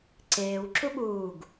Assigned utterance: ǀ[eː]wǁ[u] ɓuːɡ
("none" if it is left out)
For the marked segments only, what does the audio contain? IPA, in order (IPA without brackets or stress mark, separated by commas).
eː, u